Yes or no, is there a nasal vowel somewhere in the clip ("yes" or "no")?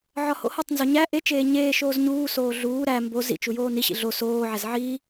no